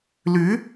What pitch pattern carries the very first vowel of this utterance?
rising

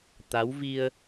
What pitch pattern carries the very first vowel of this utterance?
rising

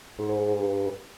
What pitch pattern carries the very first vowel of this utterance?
high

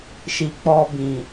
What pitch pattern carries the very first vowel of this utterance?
low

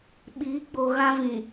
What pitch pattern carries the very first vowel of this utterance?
rising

